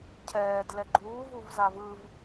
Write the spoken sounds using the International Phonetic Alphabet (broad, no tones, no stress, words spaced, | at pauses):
cʰɛːdlɛ ɡ͡ǃuːvuvzav ɯv